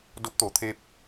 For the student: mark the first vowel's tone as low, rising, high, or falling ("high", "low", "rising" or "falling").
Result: rising